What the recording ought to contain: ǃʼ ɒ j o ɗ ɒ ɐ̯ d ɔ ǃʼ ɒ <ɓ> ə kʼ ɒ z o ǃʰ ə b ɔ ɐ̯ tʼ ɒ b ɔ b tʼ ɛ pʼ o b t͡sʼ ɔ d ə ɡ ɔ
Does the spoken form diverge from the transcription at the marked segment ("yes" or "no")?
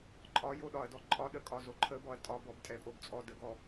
yes